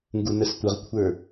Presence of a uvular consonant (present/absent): present